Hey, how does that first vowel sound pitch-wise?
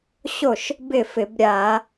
falling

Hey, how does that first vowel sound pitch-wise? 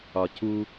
low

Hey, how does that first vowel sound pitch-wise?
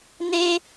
high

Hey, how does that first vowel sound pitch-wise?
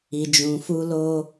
low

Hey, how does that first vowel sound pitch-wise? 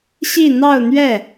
falling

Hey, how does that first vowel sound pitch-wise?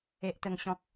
low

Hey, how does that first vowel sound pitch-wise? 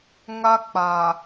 high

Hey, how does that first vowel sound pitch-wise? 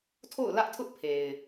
falling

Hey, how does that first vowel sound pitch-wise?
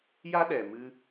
high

